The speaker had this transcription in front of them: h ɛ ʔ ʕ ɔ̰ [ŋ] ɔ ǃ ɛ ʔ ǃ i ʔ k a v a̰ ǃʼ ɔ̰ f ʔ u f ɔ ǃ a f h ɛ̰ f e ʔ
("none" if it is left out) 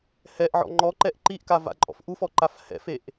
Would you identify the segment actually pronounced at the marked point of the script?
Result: ŋ͡ǃ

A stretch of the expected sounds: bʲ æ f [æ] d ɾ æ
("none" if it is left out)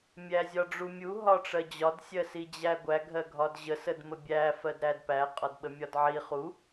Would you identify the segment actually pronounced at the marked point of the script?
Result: ɜ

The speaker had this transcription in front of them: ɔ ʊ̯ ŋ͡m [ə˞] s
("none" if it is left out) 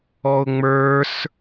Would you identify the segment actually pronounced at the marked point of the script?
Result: ə˞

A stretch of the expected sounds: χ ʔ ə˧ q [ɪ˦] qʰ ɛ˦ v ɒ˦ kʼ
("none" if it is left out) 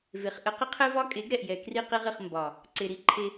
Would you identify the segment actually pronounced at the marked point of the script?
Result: ɪ˦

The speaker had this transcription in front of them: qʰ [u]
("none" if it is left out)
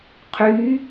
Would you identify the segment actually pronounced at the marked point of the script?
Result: y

